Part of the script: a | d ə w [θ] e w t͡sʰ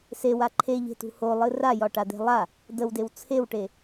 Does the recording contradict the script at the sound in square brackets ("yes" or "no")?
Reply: yes